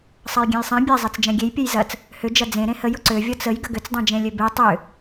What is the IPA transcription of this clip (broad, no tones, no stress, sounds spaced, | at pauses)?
sˤ ɐ j ɡʲ ẽ j sˤ ɛ̃ bʲ ɛ zˤ e t͡s d͡ʒ ɛ̃ ɡʲ e j pʲ ɛ j z ɐ t͡s | h ʏ d͡ʒ ɐ d͡z ẽ ɾ ẽ h ə j ʊ ǀ ø vʲ ɔ t͡s ə j ɡ ə ɡ ʏ t͡s dˤ ɛ̃ d͡ʒ ẽ lʲ ø b e tˤ ʏ